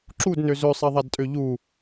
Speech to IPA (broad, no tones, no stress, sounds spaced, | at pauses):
ǁ u d n ø z ø sˤ e ðˤ a d tʼ ø ʎ u